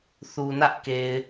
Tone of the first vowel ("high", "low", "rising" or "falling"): low